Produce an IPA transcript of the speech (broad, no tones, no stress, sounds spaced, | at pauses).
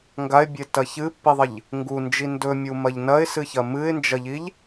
ŋ ɡ a ɪ̯ bʲ e t ɐ ç ɨ pː i ðˤ ɐ ʎ | ŋ ɡ u n d͡ʒ i n d ɵ mʲ u m ɐ ʎ n ɐ ɪ̯ s ɨ ç ɐ m ɨ ɪ̯ n d͡ʒ ɐ ʎ i ʎ